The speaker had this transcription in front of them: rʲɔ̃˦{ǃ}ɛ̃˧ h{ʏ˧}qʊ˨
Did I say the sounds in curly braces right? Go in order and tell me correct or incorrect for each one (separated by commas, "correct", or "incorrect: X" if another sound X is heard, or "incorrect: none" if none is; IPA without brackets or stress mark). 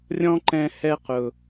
correct, incorrect: ɛ˧